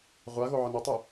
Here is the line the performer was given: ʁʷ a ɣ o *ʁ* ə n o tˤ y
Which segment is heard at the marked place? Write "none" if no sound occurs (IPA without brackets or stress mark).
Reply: ʕ